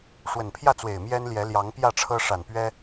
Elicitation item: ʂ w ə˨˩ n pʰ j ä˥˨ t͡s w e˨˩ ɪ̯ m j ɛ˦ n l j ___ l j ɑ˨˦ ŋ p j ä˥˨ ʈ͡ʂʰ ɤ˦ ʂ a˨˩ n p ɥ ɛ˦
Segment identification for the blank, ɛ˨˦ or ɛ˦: ɛ˨˦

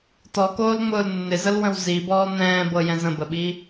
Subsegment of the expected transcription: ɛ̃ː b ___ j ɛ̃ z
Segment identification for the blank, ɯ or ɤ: ɤ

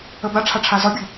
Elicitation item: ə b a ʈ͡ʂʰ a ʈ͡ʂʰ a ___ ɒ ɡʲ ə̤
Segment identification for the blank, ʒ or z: z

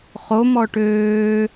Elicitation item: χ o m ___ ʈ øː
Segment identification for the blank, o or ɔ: ɔ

